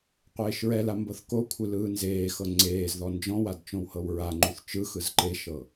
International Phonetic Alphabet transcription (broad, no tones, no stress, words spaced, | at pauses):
qʷeːʃɹɛla mbɤθkokʷʰɯ lɯːnzeːxɤ ŋ͡ǀeːzðɔ nd͡ʒɔ̃wad t͡ʃõwhɤwɹaŋ͡ǃuθ t͡ʃɯxɯz ǃeʃɤ